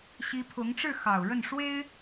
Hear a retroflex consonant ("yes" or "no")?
yes